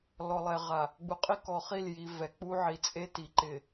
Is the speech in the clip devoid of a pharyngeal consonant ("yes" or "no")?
no